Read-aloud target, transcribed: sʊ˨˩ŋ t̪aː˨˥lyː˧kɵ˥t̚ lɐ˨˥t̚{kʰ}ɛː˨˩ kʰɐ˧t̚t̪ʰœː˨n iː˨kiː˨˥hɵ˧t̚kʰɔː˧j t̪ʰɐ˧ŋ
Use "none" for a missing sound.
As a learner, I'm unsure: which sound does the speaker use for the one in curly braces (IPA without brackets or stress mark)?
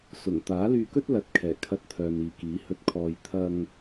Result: kʰ